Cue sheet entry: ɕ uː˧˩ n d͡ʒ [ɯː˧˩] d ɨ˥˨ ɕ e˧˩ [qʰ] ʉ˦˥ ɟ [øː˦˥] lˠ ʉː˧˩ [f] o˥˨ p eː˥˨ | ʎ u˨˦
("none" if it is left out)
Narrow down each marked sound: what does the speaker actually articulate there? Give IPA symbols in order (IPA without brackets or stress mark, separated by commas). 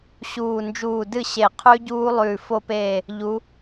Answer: uː˧˩, qʰ, uː˦˥, f